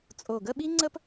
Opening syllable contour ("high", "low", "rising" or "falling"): low